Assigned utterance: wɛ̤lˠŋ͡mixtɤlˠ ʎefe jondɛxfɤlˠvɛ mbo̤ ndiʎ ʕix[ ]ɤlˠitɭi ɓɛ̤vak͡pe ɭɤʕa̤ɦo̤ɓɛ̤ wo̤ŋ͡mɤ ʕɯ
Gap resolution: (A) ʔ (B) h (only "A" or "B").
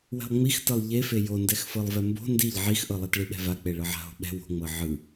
A